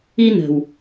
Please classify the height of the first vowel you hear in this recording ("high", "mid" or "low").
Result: high